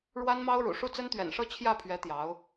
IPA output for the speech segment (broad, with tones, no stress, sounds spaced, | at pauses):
ɻ w a˥ n m ɑ˥ ʊ̯ ɻ ṵ˨˩ ʂ u˥˩ t͡s ə˥ n t̪ ɥ ɛ̰˨˩ n ʂ ɤ˥˧ t͡ɕʰ j ä˥˩ pʰ ɥ ɛ˧˥ t̪ j ɑ˧˥ ʊ̯